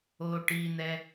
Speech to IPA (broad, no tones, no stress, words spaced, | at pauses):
o ʈin̪ɛ